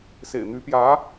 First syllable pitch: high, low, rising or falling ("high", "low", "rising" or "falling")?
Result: low